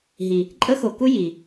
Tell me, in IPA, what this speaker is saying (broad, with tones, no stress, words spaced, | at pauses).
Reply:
ɦi˨ | ǃʼə˦xo˨ku˦ ji˨